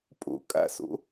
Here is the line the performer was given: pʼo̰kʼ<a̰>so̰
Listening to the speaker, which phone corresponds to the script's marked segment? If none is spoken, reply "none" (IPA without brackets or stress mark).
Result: a̰